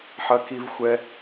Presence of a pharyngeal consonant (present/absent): present